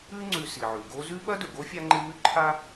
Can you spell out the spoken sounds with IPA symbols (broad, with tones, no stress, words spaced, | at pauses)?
ʉ˦ŋ͡ǀʉ˨ si˩ʕʉ˩ɡo˦zʉ˥ ɓɐ˥dɵ˩ɡo˥fʲa˦ ŋ͡ǃɨ˦mʉ˥ǃʰa˥